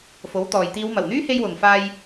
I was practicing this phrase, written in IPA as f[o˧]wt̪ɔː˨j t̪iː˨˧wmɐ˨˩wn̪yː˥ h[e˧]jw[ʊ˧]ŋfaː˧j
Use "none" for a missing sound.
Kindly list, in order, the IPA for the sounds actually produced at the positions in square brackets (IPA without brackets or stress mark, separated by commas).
o˨˥, e˧, ʊ˨